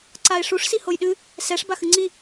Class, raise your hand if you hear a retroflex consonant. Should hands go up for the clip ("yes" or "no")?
yes